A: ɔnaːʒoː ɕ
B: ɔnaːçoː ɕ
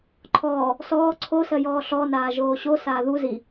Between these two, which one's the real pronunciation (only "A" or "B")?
A